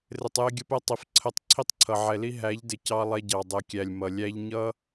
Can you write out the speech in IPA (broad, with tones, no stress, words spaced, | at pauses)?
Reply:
rɪ˨tˤjɪ˧ɡʲə˧pɛ˧ tˤi˨fǀʰə˧tˤ ǀʰi˧tˤǀʰʌ˨ʕɛ˨li˧ ɦæ˨˦ʎdɪ˨cɑ˧ lˠɛ˧ɟɑ˨ dˤɛ˨kʲæ˨lʲ mʌ˨lʲæ˦ʎ ɲʌ˦